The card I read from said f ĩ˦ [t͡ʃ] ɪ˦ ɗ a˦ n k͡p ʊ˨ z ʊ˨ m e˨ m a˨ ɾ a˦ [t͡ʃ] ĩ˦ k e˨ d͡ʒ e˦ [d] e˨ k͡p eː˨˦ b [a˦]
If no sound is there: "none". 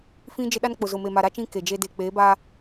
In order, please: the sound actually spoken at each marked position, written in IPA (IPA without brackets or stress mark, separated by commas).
d͡ʒ, t͡ʃ, d, a˦